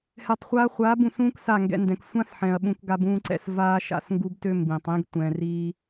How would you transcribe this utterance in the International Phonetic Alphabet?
h ɛ˨ tˤ χʷ aː˧ χʷ aː˨˦ b ũ˨ s ũː˦ k s a˦˨ ŋ ɡ ɛ̰˧ n d ɛ̃˨ k sʷ ã˦ s ħ ɛ̃˨ ɐ̯ ɓ ũ˧ k ɡ a˧ b ũː˧ ǀ ɛ̰˧ s v aː˦ ʃ a̰˦˨ s ŋ ɡ u˦ b t ø˦ m b ĩ˨ tˤ ĩ˦ ɡ tʷ ɛ̃˧ r i˦

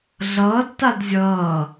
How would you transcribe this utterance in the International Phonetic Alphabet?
ɮ ʌː d t a d zʲ ʌː

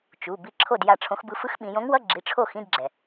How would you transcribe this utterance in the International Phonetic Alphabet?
t͡ʃ u˩˧˩ b i˥˨ ǁʰ o˥˨ d j a˥˨ ʈ͡ʂʰ õ˧˥ x b ɯ˧˥ f ɯ˧˥ x ɓ ĩ˩˧ j õ˧˥ ŋ w ʌ˧˥˧ ɡ͡ǁ i˩˧˩ ʈ͡ʂʰ o˥˨ x ĩ˧˥˧ d ɡ͡ǁ ɛ˩

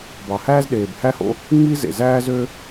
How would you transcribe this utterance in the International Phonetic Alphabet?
b ɑ˨˩ h æː˦ z ɗ eː˨˩ b h æ˦ h o̰˦ | ŋ͡m i˦ z ḛ˨˩ z æː˦ z ø˦

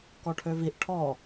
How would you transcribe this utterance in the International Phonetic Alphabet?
k ɔ ʈʰ ø v i ʔ ʈʰ ɔ

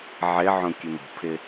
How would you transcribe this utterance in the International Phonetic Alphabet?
ʕ ɪ ʕ ũ kʲ ɨ m ṳ pʰ ɪ

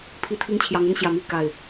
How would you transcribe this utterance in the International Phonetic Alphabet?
pʰ i˦ t̪ʰ i˦ ŋ t͡ɕʰ j ɑ˨˦ ŋ ə˦ n ɕ j ä˨˩ m i˥˨ k a˨˩ ɪ̯

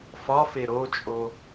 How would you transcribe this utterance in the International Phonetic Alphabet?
f ɒ f e ɾ o t͡ʃʼ o

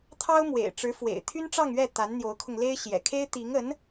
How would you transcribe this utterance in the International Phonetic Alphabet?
t̪ʰ ɑ˥ ʊ̯ m w ḛ˨˩ ɪ̯ ʈ͡ʂ ɻ̩˧˥ f w ḛ˨˩ ɪ̯ t̪ʰ y˥ n ʈ͡ʂ ɑ˥˧ ŋ ɥ ɛ˥˩ t̪ a˧˥ n n̪ j o˧˥ ʊ̯ kʰ ʊ˧ ŋ l e˥ ɪ̯ ɕ j ɛ̰˨˩ kʰ e˥ ɪ̯ t̪ i˧˥ ŋ ə˧˥ n

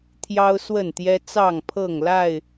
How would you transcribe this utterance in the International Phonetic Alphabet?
t̪ʰ j ɑ˦ ʊ̯ s w ə˥˨ n t̪ j ɛ˦ t͡s ɑ˥˨ ŋ pʰ ɤ˥˨ ŋ l a˥˨ ɪ̯

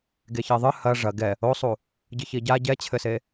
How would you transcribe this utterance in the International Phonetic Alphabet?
ɡ e ç e ðˤ ɨ h ɐ ʐ ɐ ɡ ɛ | o sˤ u | ɟ ɨ ç i ɟ a ɟ ɛ t͡ɕʰ ɘ s e

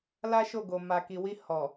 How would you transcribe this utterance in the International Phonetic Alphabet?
l a˦ ʃ o˦˨ ɡ o˨ m a˨ k i˨ w i˧ h ɔ˨

